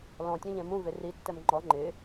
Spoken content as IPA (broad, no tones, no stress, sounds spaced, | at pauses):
l ɔ̃ tʲ ɔ̃ ʎ ɛ̃ m ũ v e r i tː ɛ m ŋ͡ǃ ɔ ŋ͡ǃ ɪ